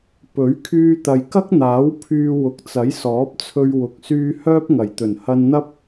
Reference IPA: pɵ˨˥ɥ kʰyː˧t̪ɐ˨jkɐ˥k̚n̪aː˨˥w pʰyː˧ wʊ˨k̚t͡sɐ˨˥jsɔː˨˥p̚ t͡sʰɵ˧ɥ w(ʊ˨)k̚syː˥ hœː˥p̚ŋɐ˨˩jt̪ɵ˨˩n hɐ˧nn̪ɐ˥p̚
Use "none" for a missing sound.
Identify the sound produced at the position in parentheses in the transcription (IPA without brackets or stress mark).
ʊ˧